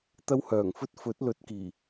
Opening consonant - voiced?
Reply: no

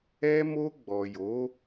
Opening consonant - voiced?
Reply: yes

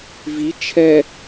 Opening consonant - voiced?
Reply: yes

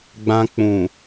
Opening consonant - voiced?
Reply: yes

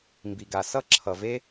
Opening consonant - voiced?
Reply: yes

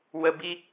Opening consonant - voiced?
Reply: yes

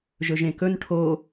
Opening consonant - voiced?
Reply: yes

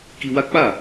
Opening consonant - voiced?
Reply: no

